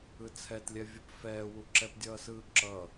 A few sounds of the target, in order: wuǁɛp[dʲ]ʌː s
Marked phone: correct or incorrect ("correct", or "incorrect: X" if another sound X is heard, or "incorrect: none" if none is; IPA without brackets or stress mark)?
correct